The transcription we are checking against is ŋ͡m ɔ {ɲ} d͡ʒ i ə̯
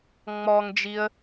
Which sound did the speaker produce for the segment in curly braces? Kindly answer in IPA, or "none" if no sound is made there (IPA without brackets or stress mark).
ŋ